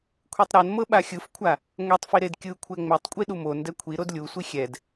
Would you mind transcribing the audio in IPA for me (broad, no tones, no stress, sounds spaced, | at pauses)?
kʷʰ i tˤ ɾ ɤ n m ɤ ɓ a xʲ ɯ f kʷʰ a | ŋʷ e tˤ f i ɾ e d kʲ ɯ kʷʰ ɛ ŋ͡m ɛ tˤ kʷʼ i ɗ u m o n d ɛ kʷʰ i ɾ o d lʲ u sʷ i xʲ ɛ d